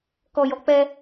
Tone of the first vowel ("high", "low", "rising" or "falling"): low